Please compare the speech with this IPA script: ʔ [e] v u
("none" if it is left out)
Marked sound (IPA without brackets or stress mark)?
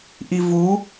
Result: i